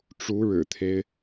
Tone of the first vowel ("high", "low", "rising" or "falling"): rising